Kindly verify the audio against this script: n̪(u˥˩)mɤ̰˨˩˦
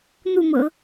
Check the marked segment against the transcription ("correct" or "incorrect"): correct